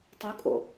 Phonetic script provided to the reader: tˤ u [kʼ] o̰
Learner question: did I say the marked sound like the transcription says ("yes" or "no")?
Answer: yes